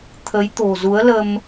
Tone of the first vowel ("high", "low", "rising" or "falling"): rising